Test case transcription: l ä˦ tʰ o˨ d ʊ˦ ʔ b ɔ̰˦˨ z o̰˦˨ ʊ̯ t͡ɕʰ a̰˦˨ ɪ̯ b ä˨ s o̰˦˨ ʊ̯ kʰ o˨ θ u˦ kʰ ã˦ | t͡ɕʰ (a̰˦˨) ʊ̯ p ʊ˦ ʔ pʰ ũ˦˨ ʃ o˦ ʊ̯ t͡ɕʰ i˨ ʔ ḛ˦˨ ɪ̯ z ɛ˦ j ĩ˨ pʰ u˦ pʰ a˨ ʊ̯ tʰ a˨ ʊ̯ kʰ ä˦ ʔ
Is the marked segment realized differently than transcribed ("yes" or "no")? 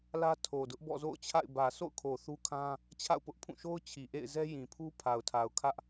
no